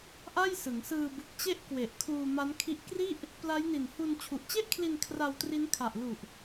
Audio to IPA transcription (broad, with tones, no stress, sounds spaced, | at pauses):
ʔ a˥˩ j s ɯ˩˦ ŋ s ɯː˧ b ɯ˨˩ k̚ t͡ɕ e˦˥ ʔ k w e˨˩ ʔ kʰ uː˧ m a˦˥ n kʰ i˦˥ ʔ k r i˥˩ ʔ | p l a˦˥ j n i˨˩ n h u˧ n t͡ɕʰ u˨˩ ʔ t͡ɕ e˥˩ ʔ kʰ l i˧ n kʰ r a˧ w t r i˦˥ n kʰ a˨˩ ʔ l u˨˩ ʔ